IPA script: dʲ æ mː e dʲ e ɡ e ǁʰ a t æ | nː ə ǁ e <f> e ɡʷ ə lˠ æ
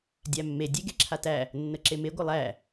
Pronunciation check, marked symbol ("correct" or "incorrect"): incorrect